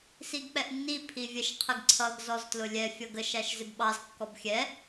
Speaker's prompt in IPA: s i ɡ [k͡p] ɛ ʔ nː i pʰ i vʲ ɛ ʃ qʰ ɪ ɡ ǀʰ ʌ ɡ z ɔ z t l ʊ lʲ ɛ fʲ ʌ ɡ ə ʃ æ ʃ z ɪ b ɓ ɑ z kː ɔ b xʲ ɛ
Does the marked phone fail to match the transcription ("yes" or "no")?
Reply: no